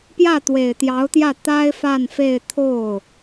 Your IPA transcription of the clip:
p j ä˥˩ t̪ w e˨˩ ɪ̯ t̪ j ɑ˧˥ ʊ̯ t̪ j ä˥˩ t̪ a˥ ɪ̯ f a˥˧ n f e˥˧ ɪ̯ t̪ʰ o˥˩ ʊ̯

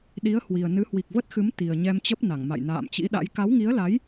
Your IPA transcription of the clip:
ɗ i˨˦ ə̯ h w i˨˩ ə̯ n ɨ˨˦ h w i˨˩ k̚ v ə˦˥ t̚ x ɨ˨˦ m t̪ i˨˩ ə̯ ɲ ɛ˧ m t͡ɕ ə˦˥ p̚ n a˧˩ ŋ m a̰˧˨ j n a̰ː˧˨ m t͡ɕ ḭ˧˥ ɗ a̰˧˥ j k a˨˦ w ŋ i˨˦ ə̯ l a˨˦ j

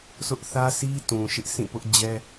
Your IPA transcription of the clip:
s ʊ˦ ʔ θ ä˦ s i˦ t ũ˨ ʃ ɪ˦ ʔ sʰ ĩ˦˨ p ʊ˦ ʔ d͡ʑ ɛ˦

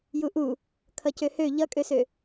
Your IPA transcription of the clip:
j u ʔ u | kʰ ʌ c ø h ø ʎ ʌ kʼ ø s ø

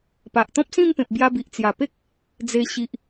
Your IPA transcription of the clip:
p a˨ ʔ t̪ ɔ̃˦ p̚ s ĩ˥˧ m p ẽ˨ p̚ b j a˧ b i˨ ʔ t͡s j a˨˩ p e˦ k̚ | d͡z e˧ ɕ i˨ ʔ

